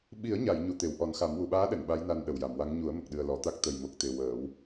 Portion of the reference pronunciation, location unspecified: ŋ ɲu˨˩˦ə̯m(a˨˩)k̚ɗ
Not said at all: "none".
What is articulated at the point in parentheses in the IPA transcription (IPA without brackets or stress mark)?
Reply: ə˨˩